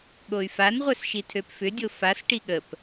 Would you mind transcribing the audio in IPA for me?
ɠoy̯fanʁʷœs ʃitʰøpfʏdʲo fasʈi ɠəp

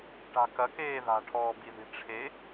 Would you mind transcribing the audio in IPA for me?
ʈa̤kɐkeː ða̤ʈʰɔːbiði̤ ʈ͡ʂʰe

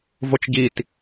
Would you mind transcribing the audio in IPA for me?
vot͡ʃɟit

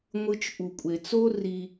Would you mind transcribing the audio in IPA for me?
ŋʷɯ˨t͡ʃ ʔu˩kʷʼe˩t͡so˥ ri˨

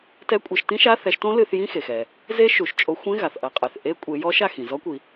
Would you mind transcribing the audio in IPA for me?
tɛ˧˥˧kʷʼɛ˧˩˧ʃtĩ˦˥ʃa˧˥˧ θɛ˨˦ʃtõ˦˥lɨ˧˩˧θjĩ˧˥˧ xe˩xɛ˩ | ze˦˥ʃu˩ʃt͡ʃʼo˨˦xʷẽ˧˥˧ ɣa˩θʔɐ˧˩˧qʼe˩θ ʔe˦˥kʷʼe˨˦jɔ˦˥ ʃa˥˩xĩ˩ zɔ˦˥kʷi˩

